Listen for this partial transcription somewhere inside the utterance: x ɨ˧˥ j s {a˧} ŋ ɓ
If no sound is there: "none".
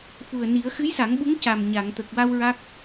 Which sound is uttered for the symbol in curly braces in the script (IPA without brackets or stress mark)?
a˨˩˦